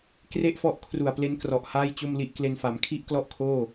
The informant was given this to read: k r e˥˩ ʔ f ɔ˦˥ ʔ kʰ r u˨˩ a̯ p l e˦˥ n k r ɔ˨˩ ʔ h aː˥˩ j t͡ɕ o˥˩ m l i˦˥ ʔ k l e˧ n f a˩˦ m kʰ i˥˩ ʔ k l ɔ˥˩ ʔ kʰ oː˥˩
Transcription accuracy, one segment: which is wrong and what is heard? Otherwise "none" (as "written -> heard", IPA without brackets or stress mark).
none